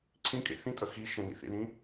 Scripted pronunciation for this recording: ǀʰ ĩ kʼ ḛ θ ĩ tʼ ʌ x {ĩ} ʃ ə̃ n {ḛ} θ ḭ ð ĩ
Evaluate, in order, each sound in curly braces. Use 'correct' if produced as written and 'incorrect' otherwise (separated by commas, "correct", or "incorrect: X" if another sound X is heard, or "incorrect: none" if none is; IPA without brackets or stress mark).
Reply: incorrect: i, incorrect: ḭ